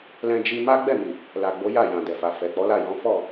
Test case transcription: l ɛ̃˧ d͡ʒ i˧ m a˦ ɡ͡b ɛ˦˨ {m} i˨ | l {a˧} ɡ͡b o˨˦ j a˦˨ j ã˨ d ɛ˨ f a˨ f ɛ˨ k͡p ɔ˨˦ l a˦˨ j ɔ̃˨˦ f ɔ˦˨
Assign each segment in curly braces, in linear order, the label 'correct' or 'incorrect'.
correct, incorrect: a˨

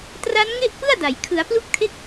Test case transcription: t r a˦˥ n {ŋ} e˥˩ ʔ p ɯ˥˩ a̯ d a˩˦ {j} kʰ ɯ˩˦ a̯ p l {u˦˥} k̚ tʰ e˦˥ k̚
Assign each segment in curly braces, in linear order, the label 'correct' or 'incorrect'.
correct, correct, correct

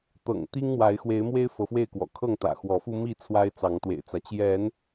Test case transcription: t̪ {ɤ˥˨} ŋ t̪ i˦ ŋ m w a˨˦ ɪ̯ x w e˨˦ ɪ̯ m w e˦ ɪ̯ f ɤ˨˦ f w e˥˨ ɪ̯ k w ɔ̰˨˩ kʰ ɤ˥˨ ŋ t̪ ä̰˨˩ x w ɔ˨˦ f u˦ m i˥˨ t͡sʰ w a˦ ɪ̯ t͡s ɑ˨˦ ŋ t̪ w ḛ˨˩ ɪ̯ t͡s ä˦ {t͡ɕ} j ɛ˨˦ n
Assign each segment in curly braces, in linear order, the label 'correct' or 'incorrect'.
incorrect: ɤ̰˨˩, correct

